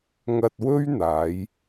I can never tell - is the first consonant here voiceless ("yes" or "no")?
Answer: no